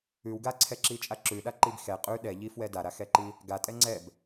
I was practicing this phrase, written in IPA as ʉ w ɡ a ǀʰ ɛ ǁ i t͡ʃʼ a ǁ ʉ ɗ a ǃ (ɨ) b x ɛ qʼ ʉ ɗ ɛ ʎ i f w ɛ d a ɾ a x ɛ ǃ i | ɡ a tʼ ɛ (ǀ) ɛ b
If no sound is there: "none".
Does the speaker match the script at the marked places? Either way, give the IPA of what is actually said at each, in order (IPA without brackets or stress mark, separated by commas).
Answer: i, ŋ͡ǀ